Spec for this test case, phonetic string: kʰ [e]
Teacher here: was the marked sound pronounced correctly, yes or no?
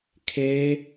yes